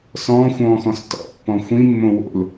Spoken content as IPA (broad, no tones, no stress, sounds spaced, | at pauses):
s ɔ̃ː xʷ ɔ̃ː x ɔ̃ s t ɔ̰ pː ɔ̃ xʷ ĩ mː õ w o̰ l